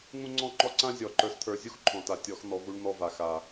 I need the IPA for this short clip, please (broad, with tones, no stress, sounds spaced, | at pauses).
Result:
ŋ ũ˦ ŋ͡ǀ ɔ̃˦ ŋ͡ǃ ɔ˦ ǀ ã˦ zʲ ɔ˦˨ ǃ ə˞˦ s t̪ʰ ə˞˦ zʲ u˦ x ǃʰ ɔ̃˨ t a˨ tʲ ɔ˨˦ x n̪ ɔ˨˦ v u˦ ɳ n̪ ɔ˦ v a˨ x a˨